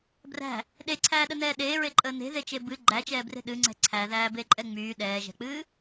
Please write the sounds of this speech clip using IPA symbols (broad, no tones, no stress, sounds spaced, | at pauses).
b r æ̤ | ɗ e ǀʰ æː ɗ ə n ɛː ɗ eː ɹ e ǃʼ əː n e̤ ð e t͡ʃ e b ɨ ɡ͡ǃ æ t͡ʃ ɛː b r e̤ ɗ ɨ ŋ͡ǀ ɛ̤ ǀʰ æ ð æː b e ǃʼ ɛ ŋ͡m yː ɗ ɛː ʒ ɛ̤ k͡p ɨː